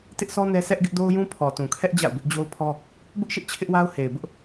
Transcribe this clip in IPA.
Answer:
t ɪ˦ ʔ sʰ ɔ˦ n ɛ˦ s ɛ˦ ʔ ɡ ɪ˦ ʔ d o˦ ʊ̯ j ũ˦ pʰ ɔ˨ t ũ˨ kʰ ɛ˦ ʔ d͡ʑ a̰˦˨ ʊ̯ b ɪ˦ ʔ d͡ʑ o˦ ʊ̯ pʰ ɔ˦ | b ʊ˦ ʔ ʃ ɪ˦ ʔ t͡ɕʰ ɪ˦ ʔ w a˦ ʊ̯ h e˨ ɪ̯ b ʊ˦ ʔ

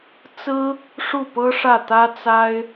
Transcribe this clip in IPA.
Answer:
t͡s ɹ̩˥ | ʂ u˥˩ p ɤ˥ ʂ ä˥˩ t̪ ä˥ t͡s a˥ ɪ̯

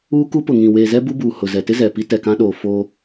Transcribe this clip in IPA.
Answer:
uː˦ k u˦ p ʊ˨ ŋ ĩ˨ w eː˨ z ɛ˦ b u˦ b uː˨ h ʊ˨ z ɛ˨ t ɪ˦ z ɛ˨ p i˦ t ɛ˨ k ã˦ ɗ oː˨ f o˦

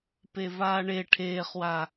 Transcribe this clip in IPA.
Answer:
p e v aː ɳ e ʈʰ eː χ w a

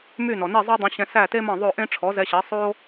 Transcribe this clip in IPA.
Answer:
m y˥˩ n ɔ˩ n i˥˩ zˤ ɑ˥ dˤ ẽ˧ ɕ ɛ̃˧ s æ˥˩ t e˥ m ɑ̃˥˩ ðˤ o˥˩ ʔ ẽ˥ ʈ͡ʂʰ ɔ˩˥ z ɛ˧ ɕ ɛ˩˥ sˤ o˥

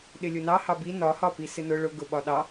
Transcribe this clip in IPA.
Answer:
ɗ ɪ lʲ ʊ n ɑ h ɑ b i n ɒ h ɒ p i s ɪ n ʊ ɭ ʊ ɡ ʊ ɓ ɒ ɗ ɑ

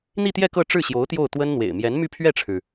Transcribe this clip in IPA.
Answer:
n̪ i˥˧ t̪ j ɛ˥˧ k ɤ˥˧ ʈ͡ʂ ɻ̩˥˩ ɕ j o˧˥ ʊ̯ t̪ j o˥˩ ʊ̯ t̪ w ə˥ n n̪ w ḛ˨˩ ɪ̯ m j ɛ˧˥ n m y˥˧ pʰ ɥ ɛ˥˩ ʈ͡ʂʰ ɻ̩˩

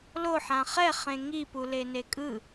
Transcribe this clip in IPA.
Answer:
l o ħ ã χ ɛ χ ẽ ŋ i p u l e n e kʼ ɯ

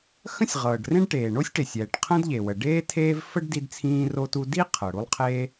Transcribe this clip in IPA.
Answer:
x ə̃˥ sʲ ʁ ɤː˩ ɖ r ẽ˥ ɖ ʈ eː˩ ɳ o˥ sʲ ʈ e˩ sʲ ɛː˩ ʈ qʰ ə̃˥ d ʎ e˩ w ə˩ ɖ eː˥ tʰ eː˥ v f ə˥ ɖ d i˥ d t͡sʰ ĩː˥ r o˥ t u˥ d i˥ qʰ ɤ˩ ɽ u˥ lˠ qʰ eː˥

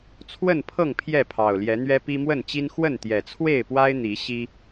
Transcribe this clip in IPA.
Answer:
t͡sʰ w ə˥˨ n pʰ ɤ˥˨ ŋ pʰ j ɛ˥˨ pʰ ɑ˨˩ ʊ̯ l j ɛ˨˦ n̪ ɥ ɛ˦ p i˦ m w ə˥˨ n t͡ɕ i˦ n x w ə˥˨ n t̪ j ɛ˨˩ t͡sʰ w e˥˨ ɪ̯ p w a˦ ɪ̯ n̪ i˨˦ ɕ i˦

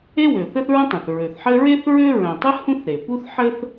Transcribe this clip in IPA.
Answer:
e˥ w ø˩ θ ɘ˥ θ ɹ ə̃˥ tˤ œ̃˩ θ ɹ ø˩ θ ħ ɘ˥ ɹ e˥ θ ɹ ø˥ ɹ œ̃˩ tˤ ɘ˥ h ũ˥ θ ɾ e˩ p u˥ θ ħ ɘ˥ θ

